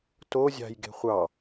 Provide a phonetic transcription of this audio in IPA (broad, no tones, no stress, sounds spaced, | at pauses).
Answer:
t o zʲ ɑ̤ j ɡ e̤ χʷ ɑ